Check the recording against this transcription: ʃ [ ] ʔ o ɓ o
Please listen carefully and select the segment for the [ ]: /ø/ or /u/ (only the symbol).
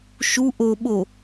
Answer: u